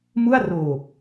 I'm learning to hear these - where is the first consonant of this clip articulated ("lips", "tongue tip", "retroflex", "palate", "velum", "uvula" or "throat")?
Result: lips